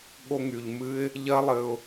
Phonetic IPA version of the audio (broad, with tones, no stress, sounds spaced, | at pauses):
ɠ o˧ ŋ y˨ ʎ m ɨ˦ ɪ̯ | ʎ ɜ˦ lˠ ɘ˧ ʊ̯